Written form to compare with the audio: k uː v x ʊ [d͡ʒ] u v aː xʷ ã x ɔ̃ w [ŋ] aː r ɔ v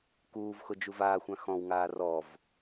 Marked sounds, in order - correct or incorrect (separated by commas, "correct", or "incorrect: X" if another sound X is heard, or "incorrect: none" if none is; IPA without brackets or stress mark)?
correct, correct